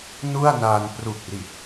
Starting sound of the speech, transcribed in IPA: n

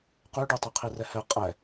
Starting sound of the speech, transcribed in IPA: q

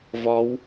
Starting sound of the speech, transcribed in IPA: v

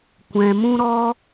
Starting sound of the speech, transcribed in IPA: kʷ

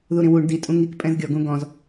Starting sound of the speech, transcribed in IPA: ð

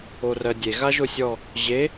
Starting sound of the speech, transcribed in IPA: o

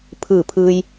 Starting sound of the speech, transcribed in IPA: pʰ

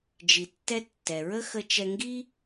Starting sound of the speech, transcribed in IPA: d͡ʒ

